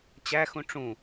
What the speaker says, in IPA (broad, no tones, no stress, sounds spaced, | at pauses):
t͡ɕ æ x ũ ʈ͡ʂ ũ